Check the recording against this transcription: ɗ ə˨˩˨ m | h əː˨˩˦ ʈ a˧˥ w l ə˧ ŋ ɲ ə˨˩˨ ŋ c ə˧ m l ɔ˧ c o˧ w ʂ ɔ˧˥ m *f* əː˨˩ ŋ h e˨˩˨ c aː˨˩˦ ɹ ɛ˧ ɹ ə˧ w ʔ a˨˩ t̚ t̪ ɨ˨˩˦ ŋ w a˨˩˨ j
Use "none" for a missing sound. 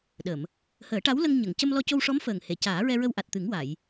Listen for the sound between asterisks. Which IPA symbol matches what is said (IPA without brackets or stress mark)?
f